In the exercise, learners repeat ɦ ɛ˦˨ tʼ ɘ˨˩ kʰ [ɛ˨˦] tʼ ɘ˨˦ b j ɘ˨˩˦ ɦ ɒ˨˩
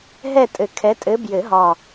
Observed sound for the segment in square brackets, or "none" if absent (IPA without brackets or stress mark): ɛ˨˦